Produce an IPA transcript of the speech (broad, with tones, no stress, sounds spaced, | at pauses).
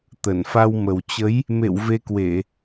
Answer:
t̪ ə˧˩ n f a˧ w m ə˨˩ w t͡ɕ ə˨˦ j | m ḛ˧˨ w v e˧ k w e˧˩˨